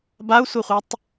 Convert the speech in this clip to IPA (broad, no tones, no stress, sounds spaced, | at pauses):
b a u̯ sʷ ə χʷ ʌ tˤ